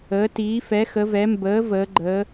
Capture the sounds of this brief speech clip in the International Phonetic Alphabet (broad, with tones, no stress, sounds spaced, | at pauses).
əː˩˧ t iː˩˧ f ɛ˩˧ x ə˩˧ v ɛ˩˧ m b əː˩˧ v əː˩˧ ɡ͡ǃ əː˩˧